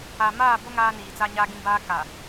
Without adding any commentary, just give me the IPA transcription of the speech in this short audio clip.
a˨ m aː˦˨ b o˦ ŋ aː˦ n iː˨ t͡s a˦ ɲ a˦ ɡ ĩ˦ b aː˦ k a˨

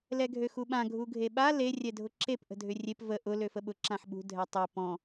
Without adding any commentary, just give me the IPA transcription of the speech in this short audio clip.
l ɛ ɡʱ ø x u ɓ ã ɡʱ u ɡʱ e ɓ a l e rʲ ɛ dʱ ʊ ǁ e p ʔ ə̤ dʱ ʏ rʲ e p v ə ʔ ʊ l ø f ə ɓ ʊ ǁ ã ħ ɓ ṳ dʱ ɛ tˤ ø p ɔ̃

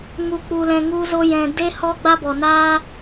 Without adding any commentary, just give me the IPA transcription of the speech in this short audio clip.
ŋ u˨ k͡p u˨ l ɛ̃˨ ŋ u˧ z o˧ j ɛ̃˨ d e˦ h ɔ˦ ɡ͡b a˦ b ɔ˨ n aː˦

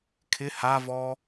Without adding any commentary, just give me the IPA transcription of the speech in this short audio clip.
kʰ ɪ h a v ɔː

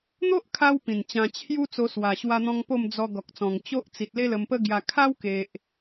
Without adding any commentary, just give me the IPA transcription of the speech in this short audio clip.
n̪ o˦ ʔ kʰ a˧ w p ĩ˨˩ n t͡ɕ ã˧ t͡ɕʰ j u˦ t͡s o˧ s w a˨˩ ɕ w a˧ n̪ ɔ̃˧ ŋ p o˥˧ m d͡z ɔ˧ ɡ ɔ˨ k̚ t͡s ɔ̃˨˩ ŋ t͡ɕ o˦ ʔ t͡s i˨ t̚ l e˦ l ə˧ m p ə˦ ɡ j a˧ kʰ a˦ w k e˨ ʔ

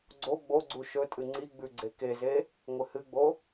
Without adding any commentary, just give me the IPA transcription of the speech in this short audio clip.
ɡ͡ǀ o ɡ͡b o ɡ͡ǀ u ʃ ɵ tʼ ɨ ŋ͡ǀ i ɡ͡b ʉ ɡ͡ǀ e k e z e | ŋʷ ɨ h ɨ ɡ͡b o

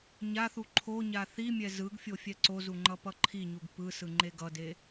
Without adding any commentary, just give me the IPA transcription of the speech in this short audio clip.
ɲ a θ u ǃʰ o ɲ a θ i mʲ ɛ z ɯ ɡ fʲ o fʲ ɛ ǀ o z u ŋ͡ǃ ʌ p ʌ ǃʰ i ɲ u ɡ p ɯ s ɯ ŋ͡ǃ e ɡ ʌ d e

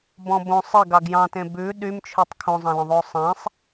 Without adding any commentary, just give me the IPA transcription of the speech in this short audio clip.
b ɔ̃ b õ sˤ e ɡ ɑ ɡ j ɑ̃ t ẽ b ʉ ɗ y m t͡ʃʰ ʉ tˤ kʰ õ zˤ ɑ̃ l œ̃ ðˤ ʉ ʊ̯ sˤ ẽ sˤ

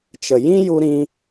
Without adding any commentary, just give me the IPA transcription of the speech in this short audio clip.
t͡ʃ ə˨ j ĩ˦ j u˦ ɾ ĩ˦

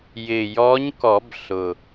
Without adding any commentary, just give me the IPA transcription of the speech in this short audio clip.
j ɪ˨˩ j ɔ˧˥ ɲ k ɔ˨˩˦ b ɬ ʊ˨˩

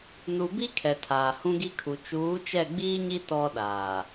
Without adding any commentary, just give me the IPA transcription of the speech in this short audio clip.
n u˨ b i˦ kʰ ɛ˨ tʰ aː˨ h ũ˦ ɡ i˦ kʰ u˨ t͡ʃ uː˨˦ t͡ʃ ɛ˦˨ ɡ͡b iː˦ ɲ i˦ t ɔ˦ ɗ aː˨

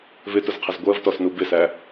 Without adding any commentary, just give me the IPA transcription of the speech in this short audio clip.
v ɪ t ʊ z qʰ ɪ z ɡʷ ɜ v t ɔ s n u b ɪ s æ

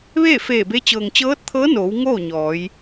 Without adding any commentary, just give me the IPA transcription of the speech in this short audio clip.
ʋ eː˥˨ f eː˧˩ b e˧˥ t͡ɕ ɤː˩ ŋ t͡ɕ ɤː˧˥ t̚ t̪ʰ ɤː˧˥ n oː˩˧ w ŋ oː˥˨ ɲ ɔː˩˧ j

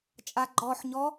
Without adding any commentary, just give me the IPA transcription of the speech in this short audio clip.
t͡ʃʼ a ɡ͡ǃ ɔ ħ ɲ ɔ

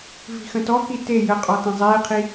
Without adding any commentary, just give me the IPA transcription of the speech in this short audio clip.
v i̤ x ə̃ t ɔ k i t e j ə qʼ ɔ t ẽ zˤ eː qʰ i

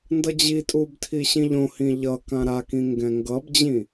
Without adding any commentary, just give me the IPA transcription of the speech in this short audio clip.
n d ʌ d͡ʑ i tʼ u b tʰ i ɕ ĩ ʎ õ h ĩ ʎ ʌ k ã ɾ a k ĩ ŋ ɡ ɛ̃ ŋ ɡ ʌ b d͡ʑ ĩ

